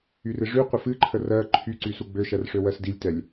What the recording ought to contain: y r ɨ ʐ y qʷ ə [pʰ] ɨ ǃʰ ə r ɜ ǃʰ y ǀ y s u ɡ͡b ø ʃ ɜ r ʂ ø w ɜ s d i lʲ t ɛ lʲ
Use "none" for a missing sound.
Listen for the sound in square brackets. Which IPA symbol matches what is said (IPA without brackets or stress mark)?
f